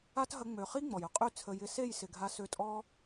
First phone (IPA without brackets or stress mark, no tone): a